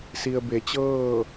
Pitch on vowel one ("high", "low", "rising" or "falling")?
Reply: low